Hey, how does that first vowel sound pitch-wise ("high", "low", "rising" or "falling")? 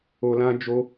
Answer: low